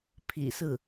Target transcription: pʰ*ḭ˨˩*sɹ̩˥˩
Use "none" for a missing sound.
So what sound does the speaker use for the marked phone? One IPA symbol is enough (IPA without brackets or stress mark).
ḭ˨˩